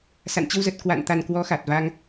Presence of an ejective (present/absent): absent